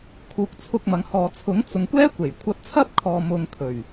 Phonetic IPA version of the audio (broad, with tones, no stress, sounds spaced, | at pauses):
kʰ uː˨ k̚ t͡sʰ ʊ˧ k̚ m ɐ˨˧ ŋ h ɔː˨ t͡sʰ ʊ˨˥ ŋ t͡s ʊ˨˧ ŋ kʷ ɛː˥ kʷ e˨˩ j kʷʰ ɐ˧ t̚ t͡sʰ ɐ˥ p̚ kʰ ɔː˨ m ʊ˧ ŋ kʰ ɵ˨˩ ɥ